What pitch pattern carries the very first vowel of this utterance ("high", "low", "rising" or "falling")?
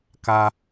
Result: high